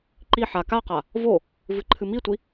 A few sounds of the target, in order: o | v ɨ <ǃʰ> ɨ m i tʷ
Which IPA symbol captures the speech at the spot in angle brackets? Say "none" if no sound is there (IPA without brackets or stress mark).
ǃʰ